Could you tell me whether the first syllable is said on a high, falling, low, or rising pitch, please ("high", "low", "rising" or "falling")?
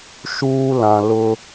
high